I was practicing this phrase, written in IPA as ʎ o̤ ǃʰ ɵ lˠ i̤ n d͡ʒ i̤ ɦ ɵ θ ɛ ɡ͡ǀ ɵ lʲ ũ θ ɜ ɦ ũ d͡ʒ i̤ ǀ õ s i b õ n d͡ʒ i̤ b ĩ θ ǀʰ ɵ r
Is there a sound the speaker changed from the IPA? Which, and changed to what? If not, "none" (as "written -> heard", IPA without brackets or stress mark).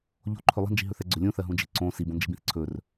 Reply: none